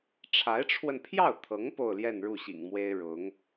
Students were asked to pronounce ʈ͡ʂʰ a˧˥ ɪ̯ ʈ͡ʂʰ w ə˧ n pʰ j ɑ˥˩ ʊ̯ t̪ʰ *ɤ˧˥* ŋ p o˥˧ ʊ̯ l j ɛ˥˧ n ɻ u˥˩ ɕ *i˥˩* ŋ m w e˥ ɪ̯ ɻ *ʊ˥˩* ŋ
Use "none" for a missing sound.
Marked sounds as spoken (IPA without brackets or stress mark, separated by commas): ɤ˧˥, ḭ˨˩, ʊ˧˥